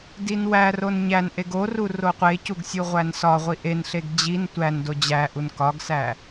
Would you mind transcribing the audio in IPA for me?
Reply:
d i n w æ r o n ɲ æ n ʔ e ɡ o r u r o qʷ e c u ɡ sʲ u ʁʷ æ n s ɒ ʁʷ i ʔ e n ɬ e ɡ d͡ʑ i n tʷ æ n d o d͡ʑ æ ʔ u n k ɒ ɡ s æ

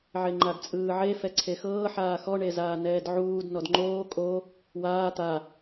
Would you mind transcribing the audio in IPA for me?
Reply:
ʕ e ŋ͡ǃ a d t͡sʼ ɯː ʕ e f ɛ ǀʰ e x ɤː ħ aː x ɔ ɳ e z aː n ɛː d ʕ uː d n ɔ d ŋ͡ǃ oː kʼ o | w aː t̪ a

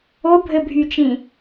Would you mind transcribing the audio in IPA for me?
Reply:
o bʱ ɘ bʱ y t͡ʃ ĩ

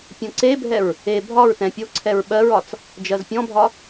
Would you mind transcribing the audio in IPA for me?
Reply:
pʲ õ ǀ e bʱ ɛ ɹ | e bʱ ɒ ɹ t ɛ̃ pʲ o ǀʰ ɛ ɹ ɓ ɜ ɹ ɒ t͡s | d͡ʒ ɜ z pʲ ɔ̃ bʱ ɒ

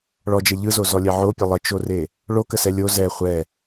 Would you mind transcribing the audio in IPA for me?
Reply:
ɭ ɔ d͡ʒ ɛ ʎ ɯ z o z ɔ lʲ ɛ ʕ o pʲ ə lˠ ə t͡ʃ o r e | ɭ o k ə s ɛ lʲ o z ɛ χʷ ɛ

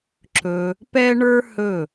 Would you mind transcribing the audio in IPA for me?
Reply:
ǁ ɵ˧ | p ɛ˥ ɳ ə˞˥ h ɵ˥˩

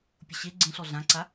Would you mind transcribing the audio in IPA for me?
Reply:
pʲ ʊ ɕ e ɡ͡ǀ ẽ ɬ ɔ ɮ ã ǀ a

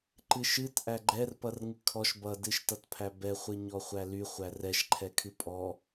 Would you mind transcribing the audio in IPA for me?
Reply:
ǃ ɨ ʃ ɨ t ʔ æ ɡ͡ǃ ɛ r p ʌ r ŋ ɨ kʰ ɔ ʃ b ʌ d ɨ ʃ t ʌ t pʰ æ b ɛ χʷ ɨ ɲ ɔ χʷ æ l y χʷ æ r ɛ ʃ ǃʰ ɛ kʰ ɨ pʼ ɔ

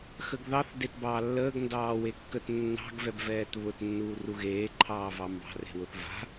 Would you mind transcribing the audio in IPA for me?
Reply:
x ə ɡ ð ɑ θ d e t b ɑː lː əː ɡ n d ɑː w e kː ə t nː ɑ̤ ɡ v ɛ b v ɛː t β ʊ t nː uː r u ɣ eː ǃʰ ɑː v ɑ m b ɑ̤ r e̤ w ʊ θ v a̤

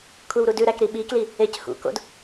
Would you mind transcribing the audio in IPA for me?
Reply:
kʷʰ ɛ w ɾ u d ʉ ɾ æ k ɾ i ɓ i k l i | e c h ṵ k o̰ d

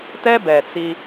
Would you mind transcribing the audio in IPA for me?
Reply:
t ɛ˦ b ɛ˨ t͡s i˦

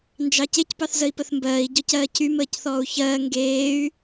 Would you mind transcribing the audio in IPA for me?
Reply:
n d͡ʒ ɑ c e c p ɑ θ z ə i̯ p ə θ m b ɜː i̯ ɟ ɔ c ɜː cʰ y m əː c θ ɔː u̯ ç ɜː ŋ ɡ eː y̯

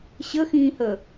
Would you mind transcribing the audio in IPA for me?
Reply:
ɕ ə x ĩː h əː

